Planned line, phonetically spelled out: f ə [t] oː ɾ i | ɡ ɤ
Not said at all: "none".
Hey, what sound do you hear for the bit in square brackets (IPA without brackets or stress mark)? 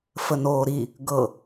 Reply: n